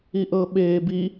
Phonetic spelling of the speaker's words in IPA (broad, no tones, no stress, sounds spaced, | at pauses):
i ʔ ɤ ɓ eː b i